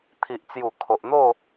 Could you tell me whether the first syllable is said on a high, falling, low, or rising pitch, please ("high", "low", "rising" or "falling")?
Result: low